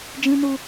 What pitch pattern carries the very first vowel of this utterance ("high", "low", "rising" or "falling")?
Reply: high